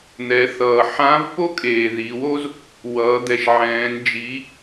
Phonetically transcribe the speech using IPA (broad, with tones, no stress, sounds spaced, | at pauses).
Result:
n̪ ɛ˩˧ θ ʌː˩ ħ ã˧˥ v p o˥ kʼ eː˩ ð i˩˧ w o˥ z | w ʌː˩˧ d̪ ɛ˩ ʃ ʕ ɛ̃ː˩˧ n d͡ʒ i˩˧